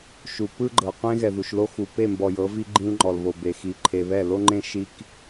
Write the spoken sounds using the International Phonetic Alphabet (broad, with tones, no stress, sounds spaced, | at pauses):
ʃ u˨ p ɯ˦ ɡ͡ǃ ɤ˨ qʷ ẽ˦ ɣ ɛ˨ ð u˨ ʃ l o˦ x u˨ p e˦˨ m b ɔ˨ j ɤ˨˦ v i˦ ɡ͡ǃ ĩ˦ l ŋ͡ǃ ɔ˨ l β o˨ b e˨ x i˨ ǃʰ e˨ β ɛ˦˨ l o˦ ŋ͡ǃ ẽ˦ ʃ i˦ k